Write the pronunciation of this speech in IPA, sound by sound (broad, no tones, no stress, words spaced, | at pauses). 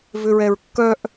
vʏɹɛɹkːœʔ